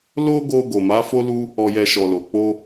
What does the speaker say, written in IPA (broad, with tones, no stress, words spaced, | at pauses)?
lo˦ɡo˧ ɡo˨ma˨˦fo˦lu˦ | ɔ˨jɛ˨ ʃɔ˨lo˨ k͡po˧